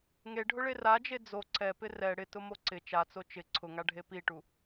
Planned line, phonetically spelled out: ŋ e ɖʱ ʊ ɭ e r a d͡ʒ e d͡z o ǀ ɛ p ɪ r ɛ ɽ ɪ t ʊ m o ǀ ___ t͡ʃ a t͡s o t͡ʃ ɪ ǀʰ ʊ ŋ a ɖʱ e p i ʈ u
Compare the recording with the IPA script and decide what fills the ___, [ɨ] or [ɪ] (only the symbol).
ɪ